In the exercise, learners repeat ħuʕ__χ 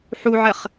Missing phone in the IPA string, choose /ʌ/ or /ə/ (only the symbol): ə